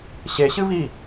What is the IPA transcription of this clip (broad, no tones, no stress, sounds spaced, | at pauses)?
ɕ e ɕ ɨ β i